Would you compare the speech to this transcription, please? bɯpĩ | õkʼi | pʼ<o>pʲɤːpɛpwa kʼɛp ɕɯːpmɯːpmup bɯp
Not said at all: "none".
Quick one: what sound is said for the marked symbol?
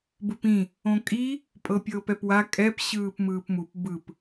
ɤ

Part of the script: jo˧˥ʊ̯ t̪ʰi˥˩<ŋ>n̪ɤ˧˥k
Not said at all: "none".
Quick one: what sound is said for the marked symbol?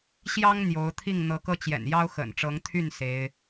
ŋ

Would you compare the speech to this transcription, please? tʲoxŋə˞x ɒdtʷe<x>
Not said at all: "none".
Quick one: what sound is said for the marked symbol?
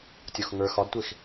x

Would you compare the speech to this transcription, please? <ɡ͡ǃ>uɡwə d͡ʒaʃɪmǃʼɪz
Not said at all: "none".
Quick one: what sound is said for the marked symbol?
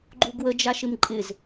ɡ͡ǃ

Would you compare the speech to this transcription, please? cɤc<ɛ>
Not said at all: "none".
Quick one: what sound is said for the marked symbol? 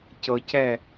ɛ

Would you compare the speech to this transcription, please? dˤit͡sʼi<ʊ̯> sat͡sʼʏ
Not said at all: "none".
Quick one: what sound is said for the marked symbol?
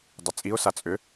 ʊ̯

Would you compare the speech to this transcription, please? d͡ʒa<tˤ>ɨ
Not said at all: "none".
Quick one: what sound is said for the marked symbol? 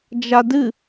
d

